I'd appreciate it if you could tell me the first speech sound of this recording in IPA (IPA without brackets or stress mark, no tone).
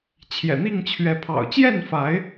t͡ɕʰ